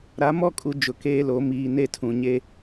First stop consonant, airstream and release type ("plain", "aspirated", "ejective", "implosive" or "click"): ejective